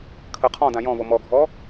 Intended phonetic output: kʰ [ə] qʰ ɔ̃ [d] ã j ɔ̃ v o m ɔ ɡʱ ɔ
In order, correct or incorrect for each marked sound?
correct, correct

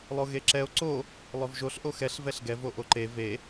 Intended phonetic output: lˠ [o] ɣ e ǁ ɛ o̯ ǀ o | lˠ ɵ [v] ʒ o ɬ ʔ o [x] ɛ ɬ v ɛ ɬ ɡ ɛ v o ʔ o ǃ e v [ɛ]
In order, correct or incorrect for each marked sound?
correct, correct, correct, incorrect: e

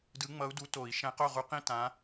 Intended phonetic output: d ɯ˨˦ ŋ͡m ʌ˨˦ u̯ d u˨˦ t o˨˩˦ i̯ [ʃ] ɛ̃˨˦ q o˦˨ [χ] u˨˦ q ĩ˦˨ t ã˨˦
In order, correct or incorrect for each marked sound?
correct, incorrect: ʁ

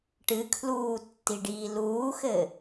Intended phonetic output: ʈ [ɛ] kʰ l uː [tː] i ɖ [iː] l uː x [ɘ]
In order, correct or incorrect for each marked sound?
incorrect: ɨ, correct, correct, correct

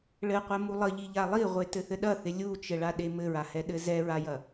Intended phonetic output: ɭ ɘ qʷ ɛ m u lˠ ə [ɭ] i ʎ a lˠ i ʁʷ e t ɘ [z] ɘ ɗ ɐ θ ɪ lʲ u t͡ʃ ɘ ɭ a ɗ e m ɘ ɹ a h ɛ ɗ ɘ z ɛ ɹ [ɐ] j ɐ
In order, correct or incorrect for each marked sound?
incorrect: ʎ, incorrect: θ, incorrect: a

